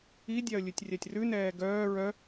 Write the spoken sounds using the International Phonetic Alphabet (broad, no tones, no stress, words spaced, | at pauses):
i dʲæə̯lʲʉtʲrʲætʲrʉ nɛːɡœː ɹœ